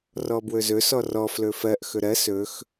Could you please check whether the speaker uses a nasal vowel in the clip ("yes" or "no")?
no